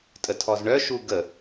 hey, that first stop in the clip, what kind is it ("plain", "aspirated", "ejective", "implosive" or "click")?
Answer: ejective